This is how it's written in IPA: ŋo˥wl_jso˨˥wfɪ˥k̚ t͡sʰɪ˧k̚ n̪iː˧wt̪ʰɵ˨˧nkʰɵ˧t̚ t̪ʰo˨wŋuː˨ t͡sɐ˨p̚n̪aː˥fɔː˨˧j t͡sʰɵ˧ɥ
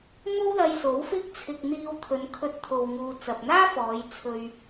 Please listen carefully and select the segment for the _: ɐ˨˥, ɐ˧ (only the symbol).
ɐ˧